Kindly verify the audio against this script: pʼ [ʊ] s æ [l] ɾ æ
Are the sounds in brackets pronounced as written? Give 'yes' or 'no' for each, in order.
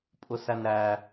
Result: yes, no

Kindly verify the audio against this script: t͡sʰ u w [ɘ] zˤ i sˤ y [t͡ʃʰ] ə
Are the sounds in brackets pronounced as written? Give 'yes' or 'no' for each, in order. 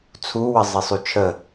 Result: yes, yes

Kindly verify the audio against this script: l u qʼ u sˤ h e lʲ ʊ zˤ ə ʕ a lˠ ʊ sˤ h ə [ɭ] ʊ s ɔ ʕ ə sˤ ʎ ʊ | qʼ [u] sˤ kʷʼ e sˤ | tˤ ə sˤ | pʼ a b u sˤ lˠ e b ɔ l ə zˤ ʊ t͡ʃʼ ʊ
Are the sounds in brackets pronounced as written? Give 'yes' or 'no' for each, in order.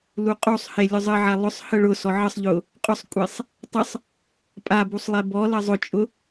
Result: yes, no

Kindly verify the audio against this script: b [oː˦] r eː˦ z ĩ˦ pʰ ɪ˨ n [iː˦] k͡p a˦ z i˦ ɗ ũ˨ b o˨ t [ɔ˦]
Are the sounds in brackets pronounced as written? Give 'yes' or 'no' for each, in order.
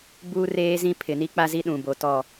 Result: no, no, no

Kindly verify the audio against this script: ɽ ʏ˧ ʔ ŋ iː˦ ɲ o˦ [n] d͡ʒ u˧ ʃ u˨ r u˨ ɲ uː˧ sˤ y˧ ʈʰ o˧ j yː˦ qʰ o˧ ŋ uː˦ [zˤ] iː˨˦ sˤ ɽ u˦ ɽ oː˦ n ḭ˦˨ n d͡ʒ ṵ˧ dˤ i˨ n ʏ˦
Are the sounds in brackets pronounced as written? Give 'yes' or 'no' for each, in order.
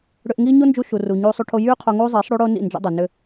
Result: yes, yes

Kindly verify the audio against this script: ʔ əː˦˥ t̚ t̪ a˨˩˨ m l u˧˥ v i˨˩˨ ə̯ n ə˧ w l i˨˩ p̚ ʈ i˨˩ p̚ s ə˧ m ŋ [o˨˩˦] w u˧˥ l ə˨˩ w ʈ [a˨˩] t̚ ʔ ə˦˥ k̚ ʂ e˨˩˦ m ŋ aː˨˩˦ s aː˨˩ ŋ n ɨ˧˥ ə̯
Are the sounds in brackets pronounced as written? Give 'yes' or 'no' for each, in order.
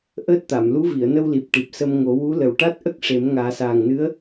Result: yes, no

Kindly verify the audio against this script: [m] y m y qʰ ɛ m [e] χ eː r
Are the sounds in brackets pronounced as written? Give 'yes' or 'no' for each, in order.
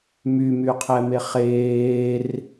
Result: yes, yes

